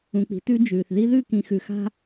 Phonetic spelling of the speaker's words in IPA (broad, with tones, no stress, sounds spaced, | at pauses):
ũ˨ k͡p i̤˨˦ t ʉ˦ d͡ʒ ʉː˨ θ ð i˦ ð ʉ˦˨ k ĩ˨ x ʉ˨ x a̤˦